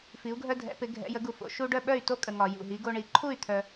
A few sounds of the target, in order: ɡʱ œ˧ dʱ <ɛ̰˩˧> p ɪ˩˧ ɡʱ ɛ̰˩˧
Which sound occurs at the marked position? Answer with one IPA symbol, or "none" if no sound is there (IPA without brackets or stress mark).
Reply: ɛ̰˩˧